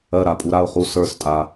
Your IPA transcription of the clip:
ɜ˧˩ɾa˧˩ pʼu˩˧ɾa˧˩ʊ̯χu˧˩ sə˞˧˩stʼa˩˧

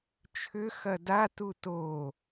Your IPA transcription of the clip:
t͡ʃʰʏ xɐda tuto

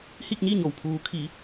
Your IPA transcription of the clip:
hi˥˨k̚ɲi˥˨ɲo˩w pʰuː˩˧kʰi˩˧

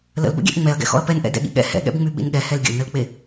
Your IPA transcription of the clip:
lə̰lbə̰ɡʲɛ̰ʔ ŋ͡mɛɐ̯ɡɛ̰xɔ̰ɐ̯ pɛnʔɛ̰ dɛ̰ɠḭɠɛ̰ hɛ̰ɠɛ̰bŋ͡my ɓḭnɠɛhɛl ɡʲə̰lnəlk͡pe

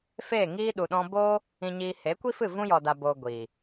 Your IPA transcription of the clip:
feː˦˨ŋiː˦ ɗu˨ɗɔ̃˧ boː˦ | ĩ˨ɲiː˨ he˨˦kʷi˦fɨ˦˨ vũ˦jɔ˨da˨boː˨ ɡʷiː˨

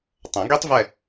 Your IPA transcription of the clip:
tˤɐ̃˨˩˦ ɡi˦˥tˤvɛ˦˨

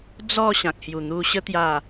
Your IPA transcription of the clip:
d͡zɔ˥˧ ɕã˨k̚hju˨˩n̪u˧ ɕə˦ t̪ja˥˧

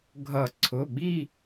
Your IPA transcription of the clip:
ɡʱʌ˨˩˦ǀʰʊ˩˧˩ɓi˦˨

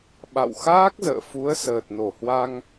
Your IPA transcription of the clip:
ɓa̰˧˨wxaː˦˥k̚zə̰ː˧˨fu˨˦ə̯ səː˨˩t̚no˧˩hwa˧ŋ

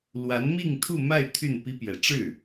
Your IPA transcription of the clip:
lwa˧˥nmi˥˧ŋt̪ʰu˥˧ma˥˧ɪ̯ t̪ʰy˥˩npi˥ pjɛ˨˩ʈ͡ʂɻ̩˥˩

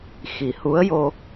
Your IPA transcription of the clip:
xi˨˩˦hu˧˥ə̯ jo˧

